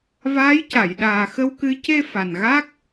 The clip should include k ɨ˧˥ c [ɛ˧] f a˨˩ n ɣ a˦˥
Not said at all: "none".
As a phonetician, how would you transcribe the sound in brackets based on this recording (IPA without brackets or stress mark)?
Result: e˧